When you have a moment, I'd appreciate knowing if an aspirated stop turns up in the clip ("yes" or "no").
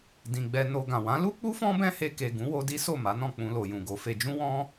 no